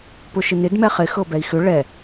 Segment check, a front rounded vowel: present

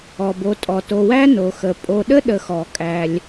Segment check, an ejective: present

